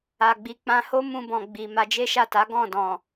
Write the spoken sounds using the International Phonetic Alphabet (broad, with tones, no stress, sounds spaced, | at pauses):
a˨ ɡ͡b i˨ k͡p ã˧ h o˦ m ũ˧ b ɔ̃˨ ɡ͡b i˨ m a˧ d͡ʒ e˦ ʃ a˦˨ t a˨˦ ɡ ɔ̃˦˨ d ɔ̃˨